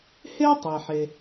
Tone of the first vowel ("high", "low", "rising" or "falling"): high